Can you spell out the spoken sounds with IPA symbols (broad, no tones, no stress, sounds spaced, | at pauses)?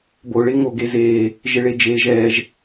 b o ɭ ɪː ŋ o ɡ e z eː | ʒ ɪ ɭ e d͡ʒ eː ʒ ɛː ʒ